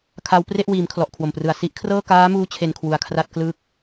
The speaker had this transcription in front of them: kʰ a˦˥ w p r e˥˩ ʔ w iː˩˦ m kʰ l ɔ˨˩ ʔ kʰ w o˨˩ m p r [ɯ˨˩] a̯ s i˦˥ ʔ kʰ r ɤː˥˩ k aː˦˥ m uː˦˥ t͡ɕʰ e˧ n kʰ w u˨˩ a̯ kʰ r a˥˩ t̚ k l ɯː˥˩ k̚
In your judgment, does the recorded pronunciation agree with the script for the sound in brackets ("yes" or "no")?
yes